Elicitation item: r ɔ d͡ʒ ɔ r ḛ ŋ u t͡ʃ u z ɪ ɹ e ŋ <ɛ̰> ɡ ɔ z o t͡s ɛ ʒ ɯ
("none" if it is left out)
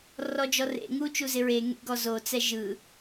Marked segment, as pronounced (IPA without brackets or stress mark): ḛ